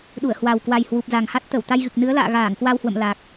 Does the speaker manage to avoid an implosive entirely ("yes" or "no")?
no